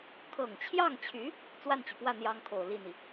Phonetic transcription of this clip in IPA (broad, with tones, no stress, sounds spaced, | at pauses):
kʰ ɤ˨˩ ŋ t͡ɕʰ j ɑ˥˩ ŋ t͡ɕʰ y˧˥ | t͡s w a˥˩ n t͡ɕ y˩ p w ä˥˩ n̪ j ɑ˥ ŋ kʰ o˨˩ ʊ̯ l i˥˩ n̪ i˩